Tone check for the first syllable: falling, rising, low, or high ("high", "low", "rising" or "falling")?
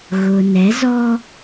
low